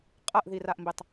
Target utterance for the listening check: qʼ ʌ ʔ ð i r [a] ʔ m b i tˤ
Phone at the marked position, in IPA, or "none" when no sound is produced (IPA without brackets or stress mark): a